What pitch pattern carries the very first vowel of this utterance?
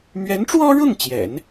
rising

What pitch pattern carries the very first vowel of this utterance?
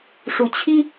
rising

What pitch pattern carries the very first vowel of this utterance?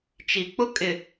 low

